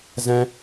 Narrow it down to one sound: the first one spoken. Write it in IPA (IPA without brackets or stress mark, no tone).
z